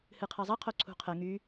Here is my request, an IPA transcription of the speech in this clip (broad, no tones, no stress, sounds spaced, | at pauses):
h ɨ qʰ ɐ zˤ ɐ qʰ o ǀʰ ṳ qʰ ə ŋ y